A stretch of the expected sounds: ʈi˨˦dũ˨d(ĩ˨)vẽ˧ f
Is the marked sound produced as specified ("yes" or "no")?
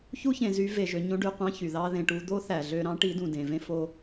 no